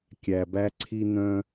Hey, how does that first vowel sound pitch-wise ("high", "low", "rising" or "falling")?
low